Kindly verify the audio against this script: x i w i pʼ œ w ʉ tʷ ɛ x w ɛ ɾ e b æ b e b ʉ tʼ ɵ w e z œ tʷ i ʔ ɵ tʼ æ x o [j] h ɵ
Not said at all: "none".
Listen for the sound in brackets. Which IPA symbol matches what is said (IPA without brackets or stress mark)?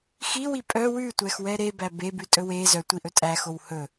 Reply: w